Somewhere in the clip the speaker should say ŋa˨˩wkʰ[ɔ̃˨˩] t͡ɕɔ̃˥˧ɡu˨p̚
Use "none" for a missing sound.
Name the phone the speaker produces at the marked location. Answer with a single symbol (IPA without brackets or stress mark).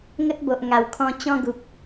ɔ̃˧